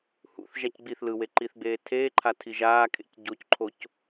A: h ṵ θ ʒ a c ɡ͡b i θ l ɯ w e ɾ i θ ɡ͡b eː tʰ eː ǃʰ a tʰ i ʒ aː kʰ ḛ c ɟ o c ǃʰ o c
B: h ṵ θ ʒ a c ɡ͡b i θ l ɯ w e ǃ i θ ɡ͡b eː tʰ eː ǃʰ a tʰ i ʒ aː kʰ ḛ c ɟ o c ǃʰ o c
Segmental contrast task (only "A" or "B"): B